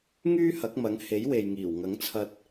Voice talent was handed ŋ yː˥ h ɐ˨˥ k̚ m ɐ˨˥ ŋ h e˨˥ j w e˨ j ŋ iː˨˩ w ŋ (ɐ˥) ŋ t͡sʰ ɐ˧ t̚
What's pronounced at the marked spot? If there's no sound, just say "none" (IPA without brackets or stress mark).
ɐ˨˥